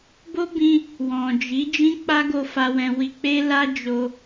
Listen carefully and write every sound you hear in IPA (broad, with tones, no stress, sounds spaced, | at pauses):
b o˦ b ĩ˧ | w ɔ̃˨ d͡ʒ i˨˦ d͡ʒ ĩ˦ k͡p a˦ ɡ o˧ f a˧ w ɛ̃˧ w i˧ k͡p e˦ l a˦ d͡ʒ o˧